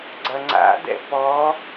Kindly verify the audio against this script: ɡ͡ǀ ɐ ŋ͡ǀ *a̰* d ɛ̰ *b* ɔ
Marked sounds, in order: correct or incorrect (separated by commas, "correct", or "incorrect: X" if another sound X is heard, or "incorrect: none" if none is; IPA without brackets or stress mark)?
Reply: correct, incorrect: p